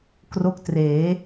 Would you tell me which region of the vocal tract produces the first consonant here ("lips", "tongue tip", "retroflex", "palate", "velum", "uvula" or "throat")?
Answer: velum